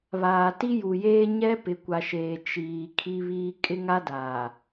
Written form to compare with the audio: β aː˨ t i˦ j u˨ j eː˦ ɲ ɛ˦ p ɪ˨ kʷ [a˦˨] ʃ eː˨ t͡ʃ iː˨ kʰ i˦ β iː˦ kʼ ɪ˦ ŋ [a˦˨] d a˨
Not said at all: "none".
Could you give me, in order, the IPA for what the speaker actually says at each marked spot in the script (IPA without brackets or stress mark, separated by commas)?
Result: a˨, a˦